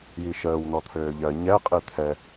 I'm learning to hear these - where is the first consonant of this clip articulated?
palate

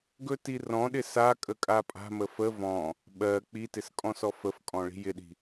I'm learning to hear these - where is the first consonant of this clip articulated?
velum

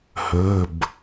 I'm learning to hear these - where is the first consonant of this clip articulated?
throat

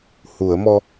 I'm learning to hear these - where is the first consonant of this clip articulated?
throat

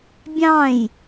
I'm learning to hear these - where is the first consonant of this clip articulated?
lips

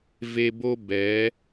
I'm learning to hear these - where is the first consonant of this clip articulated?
lips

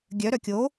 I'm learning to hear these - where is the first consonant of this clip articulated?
velum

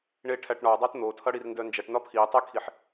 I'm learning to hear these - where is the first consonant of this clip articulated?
retroflex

